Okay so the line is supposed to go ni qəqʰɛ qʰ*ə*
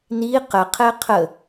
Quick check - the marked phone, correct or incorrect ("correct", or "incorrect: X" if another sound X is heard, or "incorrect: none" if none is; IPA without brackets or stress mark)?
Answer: correct